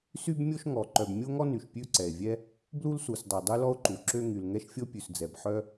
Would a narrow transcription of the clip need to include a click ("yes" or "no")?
yes